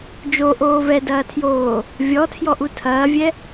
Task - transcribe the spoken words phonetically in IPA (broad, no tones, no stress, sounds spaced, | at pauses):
d͡ʒ o ʔ oː v ɛ d ɐː tʰ j oː | vʲ ɔ tʰ j ɔ ʔ u tʰ ɐː vʲ ɛ